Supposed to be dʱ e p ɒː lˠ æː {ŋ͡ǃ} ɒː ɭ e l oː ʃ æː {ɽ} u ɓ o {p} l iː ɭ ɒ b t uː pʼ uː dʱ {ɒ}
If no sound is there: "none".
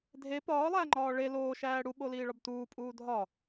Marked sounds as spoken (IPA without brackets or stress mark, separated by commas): ŋ͡ǃ, ɽ, none, ɒ